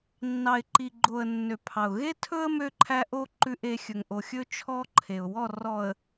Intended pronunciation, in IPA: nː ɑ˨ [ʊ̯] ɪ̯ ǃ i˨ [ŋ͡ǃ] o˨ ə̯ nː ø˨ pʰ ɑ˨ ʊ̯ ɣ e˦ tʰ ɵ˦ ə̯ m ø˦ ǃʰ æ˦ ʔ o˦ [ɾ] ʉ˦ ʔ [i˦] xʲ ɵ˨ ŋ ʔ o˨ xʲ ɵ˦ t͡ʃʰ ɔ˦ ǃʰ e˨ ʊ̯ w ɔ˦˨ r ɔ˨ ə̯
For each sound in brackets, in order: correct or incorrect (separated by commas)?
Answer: incorrect, incorrect, incorrect, incorrect